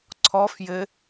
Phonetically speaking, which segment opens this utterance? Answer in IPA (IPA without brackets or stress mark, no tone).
ǀʰ